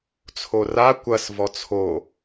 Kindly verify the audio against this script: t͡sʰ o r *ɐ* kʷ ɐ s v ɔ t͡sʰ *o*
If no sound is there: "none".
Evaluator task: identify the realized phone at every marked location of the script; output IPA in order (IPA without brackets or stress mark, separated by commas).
a, o